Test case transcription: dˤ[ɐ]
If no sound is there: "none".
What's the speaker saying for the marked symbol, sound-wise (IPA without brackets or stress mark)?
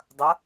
ɐ